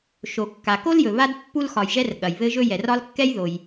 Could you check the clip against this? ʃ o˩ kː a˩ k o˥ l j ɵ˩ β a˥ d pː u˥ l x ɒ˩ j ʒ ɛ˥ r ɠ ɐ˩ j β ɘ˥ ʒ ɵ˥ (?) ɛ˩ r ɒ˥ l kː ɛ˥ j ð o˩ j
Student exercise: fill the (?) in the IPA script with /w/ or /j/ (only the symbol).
j